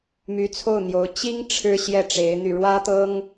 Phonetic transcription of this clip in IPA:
my˧˥t͡sʰo˥˩ʊ̯n̪jo˧˥ʊ̯ t͡ɕi˥ŋ ʈ͡ʂʰɻ̩˥ɕjɛ˥˩ʈ͡ʂe˧˥ɪ̯n̪y˧ ɻwä˥t̪ɤ˥ŋ

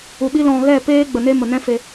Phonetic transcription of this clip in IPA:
u˨ɓi˦lɔ̃˧ ɣɛ˦˨ peː˦ ɡ͡bə˨ne˦mə˨ nɛ̃˦fe˧

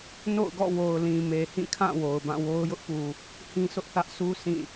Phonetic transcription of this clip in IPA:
no̰˦˨ʊ̯ɡɔ̰˦˨wo˨ʊ̯lĩ˨ me˨hĩ˦˨kʰã˦˨ wo˨ʊ̯bã˦˨wo˦ʊ̯ jʊ˦ʔpu˨ | hĩ˦sʰʊ˦ʔθä˦ʔ sʰu˦ sʰĩ˦˨

